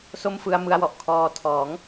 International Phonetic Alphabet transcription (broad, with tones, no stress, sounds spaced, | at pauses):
s o˥˩ m f ɯ˧ a̯ m ɯ˧ a̯ w ɔ˨˩ ʔ kʰ ɔː˧ tʰ ɔː˩˦ ŋ